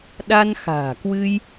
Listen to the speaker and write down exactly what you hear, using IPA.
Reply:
ɗ a˧ n x a̤ː˨˩ k w ɨ˧ j

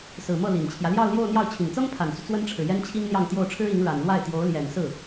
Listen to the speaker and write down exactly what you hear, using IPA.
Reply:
s ɹ̩˨˩ m ɤ˥˩ l i˨˩ n t͡ɕʰ j ä˦ l j ɑ˥˧ ʊ̯ l j o˥˧ ʊ̯ n̪ j ɑ˥˩ ʊ̯ t͡ɕʰ i˨˩ ŋ t͡s ɤ˥ ŋ pʰ a˨˩ n t͡s u˦ t͡s w ə˥ n ʈ͡ʂʰ ɻ̩˨ j ɛ˥ n t͡ɕʰ i˥ ŋ n̪ j ɑ˥˧ ŋ t̪ j o˥˩ ʊ̯ ʈ͡ʂʰ ɻ̩˥ i˧˥ ŋ ɻ a˨˩ n l w a˥˩ ɪ̯ t̪ j o˧˥ ʊ̯ l j ɛ˨˩ n s ɹ̩˥˩

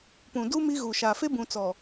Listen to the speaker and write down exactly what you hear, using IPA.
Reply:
p ũ˨ d u˦ m i˦ ɣ u˨ ʃ a˨ f e˦ b ũ˨ t͡s ɔ˨

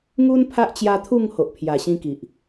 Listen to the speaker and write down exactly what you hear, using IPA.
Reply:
ŋ u˧ n pʰ a˦ ʔ t͡ɕ j a˧ t̪ʰ u˥˧ ŋ h o˨ ʔ pʰ j a˨˩ ɕ ĩ˧ k i˨ ʔ

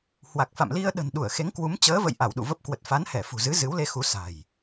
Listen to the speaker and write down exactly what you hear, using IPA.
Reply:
h w a˨˩ k̚ f a̰˧˨ m l i˧ ə̯ ɗ ə̤˨˩ n ɗ u˧˩ ə̯ x e˨˦ ŋ k w u˨˦ m t͡ɕ əː˨˦ v ə̰˧˨ j ʔ a˧˩ w ɗ ṵ˧˨ v ə˦˥ p̚ k w ə˨˩ t̚ f a˨˦ n h ɛ˧˩ f ṳ˨˩ z ɨ˨˦ z ɨ˨˦ w l e˧ x u˨˦ s a̤˨˩ j

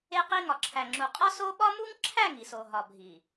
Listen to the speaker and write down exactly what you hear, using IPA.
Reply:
e˦ q i˦ ŋ ɒ˨ ǁʰ æ˨ ŋ͡ǁ u˨ qʼ ɒ˦ s o˦ ɓ ɒ˦ m u˦ ŋ ǁʰ æ˦˨ ŋ i˨ s o˨ ɦ ɒ˨ bʱ i˨

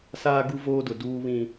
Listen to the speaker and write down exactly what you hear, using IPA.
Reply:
s aː˦ ɡ u˦ v oː˦ d ʊ˨ d uː˦ β ĩ˦

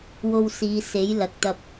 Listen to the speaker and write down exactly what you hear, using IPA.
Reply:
w o˧ w s iː˨˧ s e˨˥ j l ɐ˨ k̚ t̪ ɐ˧ p̚

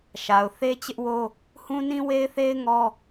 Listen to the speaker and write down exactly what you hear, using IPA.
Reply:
ʃ a˨ ʊ̯ θ e˦ t͡ɕ ɪ˦ ʔ w o˦ | h ũ˦ n ĩ˦ w e˦ ɪ̯ θ e˦ ɪ̯ ŋ ɔ˦

